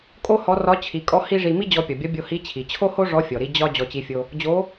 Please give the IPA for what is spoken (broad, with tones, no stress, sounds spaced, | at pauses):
kʼ o˥ h ɔ˧˥ r ɒ˧˥ t͡ɕʰ i˩˧ kʼ ɔ˧˥ h i˥ ʐ i˧ m i˥ d͡ʑ ɔ˧ pʲ ɔ˩ bʲ ɒ˧˥ bʲ o˧ h i˧˥ t͡ɕʰ i˩ t͡ɕʰ o˥ h o˥ ʐ ɔ˧˥ fʲ ɔ˩ ɾ i˧ d͡ʑ ɒ˥ d͡ʑ ɔ˧ t͡ɕ i˧ fʲ o˧ | d͡ʑ o˧˥